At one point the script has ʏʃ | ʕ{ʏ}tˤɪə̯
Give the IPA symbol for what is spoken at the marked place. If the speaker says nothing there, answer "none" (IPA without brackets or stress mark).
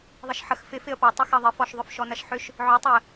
ʏ